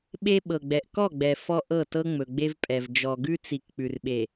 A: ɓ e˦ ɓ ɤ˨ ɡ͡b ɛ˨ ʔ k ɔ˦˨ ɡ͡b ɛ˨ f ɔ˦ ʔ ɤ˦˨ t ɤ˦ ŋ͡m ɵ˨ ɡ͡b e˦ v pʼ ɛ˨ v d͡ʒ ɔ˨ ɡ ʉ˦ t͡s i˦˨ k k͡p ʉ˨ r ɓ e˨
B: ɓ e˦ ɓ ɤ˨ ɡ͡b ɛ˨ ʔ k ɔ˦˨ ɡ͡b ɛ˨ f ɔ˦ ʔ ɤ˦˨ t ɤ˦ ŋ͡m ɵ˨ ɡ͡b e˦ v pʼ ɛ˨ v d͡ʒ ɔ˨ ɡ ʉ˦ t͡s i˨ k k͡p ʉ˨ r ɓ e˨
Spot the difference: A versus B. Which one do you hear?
B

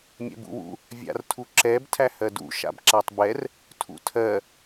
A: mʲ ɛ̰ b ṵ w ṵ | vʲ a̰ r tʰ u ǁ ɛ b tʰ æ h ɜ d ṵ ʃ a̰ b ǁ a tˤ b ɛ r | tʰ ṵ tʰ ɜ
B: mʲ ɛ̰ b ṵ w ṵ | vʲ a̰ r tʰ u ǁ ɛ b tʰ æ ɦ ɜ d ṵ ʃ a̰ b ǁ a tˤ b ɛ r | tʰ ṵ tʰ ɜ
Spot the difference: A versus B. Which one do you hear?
A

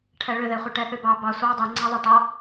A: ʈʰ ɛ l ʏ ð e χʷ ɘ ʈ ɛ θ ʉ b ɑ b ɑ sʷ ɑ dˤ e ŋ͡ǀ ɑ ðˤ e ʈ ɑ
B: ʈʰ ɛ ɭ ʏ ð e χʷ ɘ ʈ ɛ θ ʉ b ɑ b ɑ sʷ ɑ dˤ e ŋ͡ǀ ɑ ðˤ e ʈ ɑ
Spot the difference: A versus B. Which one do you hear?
B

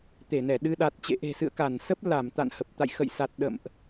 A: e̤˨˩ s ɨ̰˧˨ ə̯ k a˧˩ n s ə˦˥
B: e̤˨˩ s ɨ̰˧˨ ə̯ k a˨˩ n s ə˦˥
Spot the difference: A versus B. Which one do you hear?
A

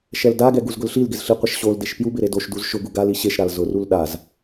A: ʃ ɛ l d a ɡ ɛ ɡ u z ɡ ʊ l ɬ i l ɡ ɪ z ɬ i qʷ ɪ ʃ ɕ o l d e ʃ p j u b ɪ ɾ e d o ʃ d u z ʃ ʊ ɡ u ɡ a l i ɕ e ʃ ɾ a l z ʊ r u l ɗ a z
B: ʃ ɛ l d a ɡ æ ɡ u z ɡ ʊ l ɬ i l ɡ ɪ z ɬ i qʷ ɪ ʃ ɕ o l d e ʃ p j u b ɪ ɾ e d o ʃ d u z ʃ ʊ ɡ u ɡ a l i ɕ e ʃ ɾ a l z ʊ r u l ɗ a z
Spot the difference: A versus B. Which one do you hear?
A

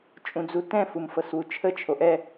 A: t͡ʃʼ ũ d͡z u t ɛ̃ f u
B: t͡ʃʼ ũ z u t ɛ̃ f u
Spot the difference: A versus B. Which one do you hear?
A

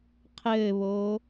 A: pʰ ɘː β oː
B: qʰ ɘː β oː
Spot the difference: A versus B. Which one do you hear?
B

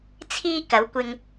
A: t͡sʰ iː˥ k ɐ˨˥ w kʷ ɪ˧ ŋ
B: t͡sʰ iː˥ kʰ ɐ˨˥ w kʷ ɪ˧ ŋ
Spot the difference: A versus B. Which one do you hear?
A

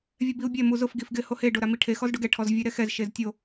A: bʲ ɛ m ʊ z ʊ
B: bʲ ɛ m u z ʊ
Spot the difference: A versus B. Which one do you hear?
B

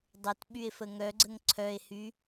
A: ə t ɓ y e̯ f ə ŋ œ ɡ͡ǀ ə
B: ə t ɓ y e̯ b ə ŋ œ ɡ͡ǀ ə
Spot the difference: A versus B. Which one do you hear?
A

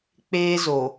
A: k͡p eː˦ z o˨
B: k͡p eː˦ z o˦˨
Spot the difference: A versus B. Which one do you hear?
A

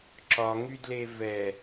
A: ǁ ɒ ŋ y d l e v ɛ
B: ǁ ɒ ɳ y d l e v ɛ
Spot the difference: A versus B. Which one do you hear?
A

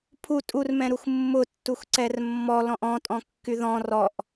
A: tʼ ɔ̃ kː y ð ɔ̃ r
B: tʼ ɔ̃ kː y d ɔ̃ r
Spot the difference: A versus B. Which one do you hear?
A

